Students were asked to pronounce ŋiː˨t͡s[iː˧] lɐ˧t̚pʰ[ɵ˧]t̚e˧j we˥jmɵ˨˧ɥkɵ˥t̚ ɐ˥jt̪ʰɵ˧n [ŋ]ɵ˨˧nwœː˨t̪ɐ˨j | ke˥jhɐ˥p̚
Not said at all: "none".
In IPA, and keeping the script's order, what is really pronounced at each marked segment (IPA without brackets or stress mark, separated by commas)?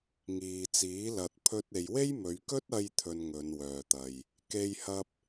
iː˨˥, ɵ˥, ŋ